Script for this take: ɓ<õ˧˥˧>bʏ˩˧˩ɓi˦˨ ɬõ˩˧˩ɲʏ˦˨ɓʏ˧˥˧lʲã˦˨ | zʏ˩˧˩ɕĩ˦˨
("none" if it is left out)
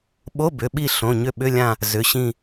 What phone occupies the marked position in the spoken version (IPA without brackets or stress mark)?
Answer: o˧˥˧